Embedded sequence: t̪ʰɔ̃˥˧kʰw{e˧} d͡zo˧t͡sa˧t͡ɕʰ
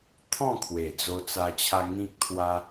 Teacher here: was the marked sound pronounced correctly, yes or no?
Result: no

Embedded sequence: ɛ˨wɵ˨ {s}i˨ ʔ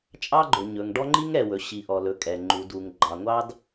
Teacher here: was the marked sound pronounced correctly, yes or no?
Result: no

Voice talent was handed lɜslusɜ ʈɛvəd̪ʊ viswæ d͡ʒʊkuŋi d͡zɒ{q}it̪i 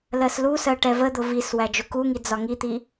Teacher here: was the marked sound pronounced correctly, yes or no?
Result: no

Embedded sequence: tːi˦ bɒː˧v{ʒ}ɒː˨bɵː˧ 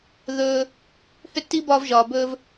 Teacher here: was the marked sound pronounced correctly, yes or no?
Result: yes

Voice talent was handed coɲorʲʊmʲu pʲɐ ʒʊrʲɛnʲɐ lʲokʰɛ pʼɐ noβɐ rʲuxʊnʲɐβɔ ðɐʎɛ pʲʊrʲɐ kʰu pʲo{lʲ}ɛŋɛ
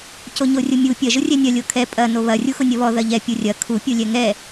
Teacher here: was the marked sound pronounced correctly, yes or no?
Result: yes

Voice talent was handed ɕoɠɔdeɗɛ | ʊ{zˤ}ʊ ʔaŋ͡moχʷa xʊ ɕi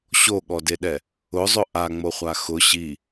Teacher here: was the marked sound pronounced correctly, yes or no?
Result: yes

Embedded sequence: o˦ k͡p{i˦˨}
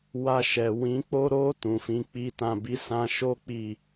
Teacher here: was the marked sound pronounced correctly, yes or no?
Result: yes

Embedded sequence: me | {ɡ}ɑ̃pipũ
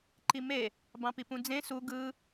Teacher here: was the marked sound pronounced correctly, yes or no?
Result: no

